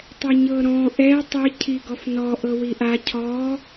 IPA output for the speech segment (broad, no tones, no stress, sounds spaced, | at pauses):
tˤ ɛ ɲ ɤ ɾ ɔ̃ ʔ ɛ tˤ i cʰ i ɡ ɔ f n ɔ ʔ ɤ w i ʔ a cʰ ɔ